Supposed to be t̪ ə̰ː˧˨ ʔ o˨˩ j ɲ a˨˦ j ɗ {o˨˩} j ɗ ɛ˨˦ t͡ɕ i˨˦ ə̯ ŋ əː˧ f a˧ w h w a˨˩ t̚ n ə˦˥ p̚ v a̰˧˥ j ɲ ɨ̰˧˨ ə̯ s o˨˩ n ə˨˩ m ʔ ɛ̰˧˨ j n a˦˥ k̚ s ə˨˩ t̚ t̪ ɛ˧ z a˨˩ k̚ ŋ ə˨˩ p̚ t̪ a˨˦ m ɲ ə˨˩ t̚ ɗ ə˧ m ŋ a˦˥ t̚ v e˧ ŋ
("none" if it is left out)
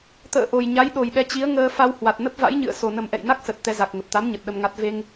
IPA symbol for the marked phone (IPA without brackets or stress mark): o˨˩